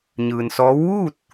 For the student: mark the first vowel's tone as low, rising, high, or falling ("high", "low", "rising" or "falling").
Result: low